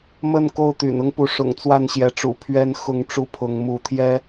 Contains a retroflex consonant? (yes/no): yes